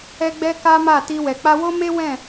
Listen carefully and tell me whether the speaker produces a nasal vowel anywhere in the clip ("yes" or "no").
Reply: yes